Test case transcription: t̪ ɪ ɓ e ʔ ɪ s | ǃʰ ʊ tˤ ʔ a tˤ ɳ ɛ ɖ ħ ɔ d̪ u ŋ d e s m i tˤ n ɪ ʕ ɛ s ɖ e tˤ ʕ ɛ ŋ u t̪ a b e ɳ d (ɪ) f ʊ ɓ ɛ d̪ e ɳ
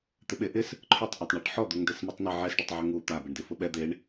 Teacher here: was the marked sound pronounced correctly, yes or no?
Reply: yes